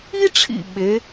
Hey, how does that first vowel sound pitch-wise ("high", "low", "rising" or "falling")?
high